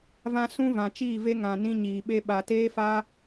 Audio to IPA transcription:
v ã˧ s ũ˦ v ã˨ t͡ʃ iː˦˨ v e˦ ŋ ã˨ n ĩ˧ ɲ iː˨ ɓ e˧ ɓ a˨ t eː˦ f a˦

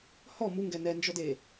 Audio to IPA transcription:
h ɔ m u ŋ ɡ ɛ n ɛ n d͡ʒ ɔ d e

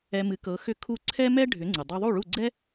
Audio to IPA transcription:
ɛ˧ m ɨ˩˥ k ɤ˩˥ x ʏ˥˩ kʰ u˥˩ ǀʰ ɛ˥ m ɛ˥ ɖʱ ʏ˩˥ ŋ͡ǀ ɨ˩ dˤ ɤ˧ ðˤ u˥˩ ɭ u˥˩ ɡ͡ǀ ɛ˥

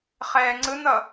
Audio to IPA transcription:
χ ɛː ŋ͡ǀ ɯ n ʌ

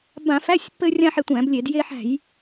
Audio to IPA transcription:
b ã˧˩˧ f æ˧˥˧ sʲ pː ɘ˧ rʲ ã˧ ħ e˧ tʷ æ̃˧˩˧ b lʲ e˧˩˧ d j e˧ ħ æ̤˧˩˧ j

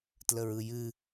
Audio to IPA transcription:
t l ə ɹ ɯ j ɨ

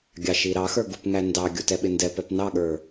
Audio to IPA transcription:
ɡʲ ɑ ʃ i ɾ ɑ x ə˞ ɡ u p ŋ æ n d ɑ ɡʲ u t ɛ ɓ ɪ n d ɛ p ɛ p n ɑ ɠ ə˞

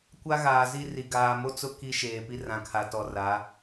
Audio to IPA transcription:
kʷ a˦ ɣ aː˨ z i˦ r i˨ ɡ aː˨ m o˦ t͡s ʊ˦ k i˦ ʃ eː˨ p i˦ r ã˨ kʰ a˨ t ɔ˨ r a˨˦

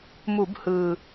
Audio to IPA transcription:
m u˧˩˧ b h ɯ˨˩

